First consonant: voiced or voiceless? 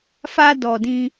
voiceless